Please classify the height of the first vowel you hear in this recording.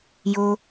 mid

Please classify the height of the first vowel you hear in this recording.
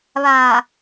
low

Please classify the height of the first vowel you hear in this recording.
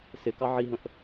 high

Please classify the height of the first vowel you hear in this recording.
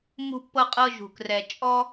high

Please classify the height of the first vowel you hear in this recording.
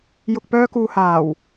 high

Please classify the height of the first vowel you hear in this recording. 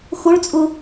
high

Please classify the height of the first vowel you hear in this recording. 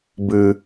high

